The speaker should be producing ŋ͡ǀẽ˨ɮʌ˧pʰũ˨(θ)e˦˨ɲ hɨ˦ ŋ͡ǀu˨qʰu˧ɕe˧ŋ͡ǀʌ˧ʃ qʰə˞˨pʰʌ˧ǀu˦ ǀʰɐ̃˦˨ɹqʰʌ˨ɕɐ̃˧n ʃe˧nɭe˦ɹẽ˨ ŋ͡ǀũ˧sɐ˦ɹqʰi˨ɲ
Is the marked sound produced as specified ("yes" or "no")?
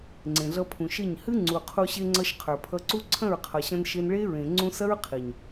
no